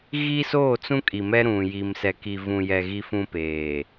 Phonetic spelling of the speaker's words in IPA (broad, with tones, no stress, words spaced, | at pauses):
ɣi˦ soː˦˨t͡sũ˦kʼi˨mɛ˦ ɾũ˨ ji˨msɛ˨ ki˨vũ˨jɛ˨ ɣi˦fũ˦peː˨